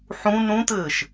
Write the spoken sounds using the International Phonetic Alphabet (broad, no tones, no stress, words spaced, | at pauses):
ħũ nũt̪ɘːʃ